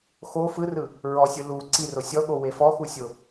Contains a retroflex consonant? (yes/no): no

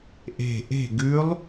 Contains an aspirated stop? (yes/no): no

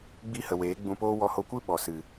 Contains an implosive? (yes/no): yes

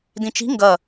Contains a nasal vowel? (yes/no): yes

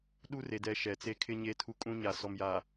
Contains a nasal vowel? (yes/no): yes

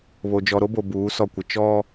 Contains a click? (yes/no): no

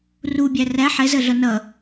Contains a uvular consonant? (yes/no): no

